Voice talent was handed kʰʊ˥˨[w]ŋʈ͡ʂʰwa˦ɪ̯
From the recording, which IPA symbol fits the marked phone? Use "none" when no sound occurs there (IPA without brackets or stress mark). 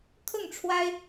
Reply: none